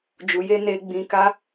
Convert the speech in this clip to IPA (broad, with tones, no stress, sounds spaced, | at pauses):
d͡ʒ u˨ j e˧ n e˧ ɡ͡b ĩ˧ k a˦